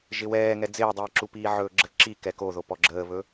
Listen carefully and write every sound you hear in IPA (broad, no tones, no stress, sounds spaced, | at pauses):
ʒ ɪ w ɛː ŋ ɛ d͡z ɪː dˤ iː ǁ u p iː ʕ ɵː ɡ͡ǁ ə ǁ i k ɛ k o ð o p ɔ ɡ͡ǁ əː β ɵ